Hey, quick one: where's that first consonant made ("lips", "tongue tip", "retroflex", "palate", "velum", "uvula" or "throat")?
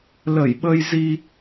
tongue tip